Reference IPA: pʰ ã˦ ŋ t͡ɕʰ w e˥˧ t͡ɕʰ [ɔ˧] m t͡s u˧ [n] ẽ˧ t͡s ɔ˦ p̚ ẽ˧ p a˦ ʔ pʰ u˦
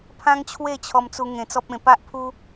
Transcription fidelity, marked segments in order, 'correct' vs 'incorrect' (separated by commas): correct, incorrect